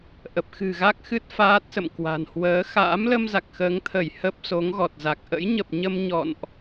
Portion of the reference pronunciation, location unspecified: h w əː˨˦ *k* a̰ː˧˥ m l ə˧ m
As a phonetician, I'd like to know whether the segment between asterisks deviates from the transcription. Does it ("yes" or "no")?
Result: yes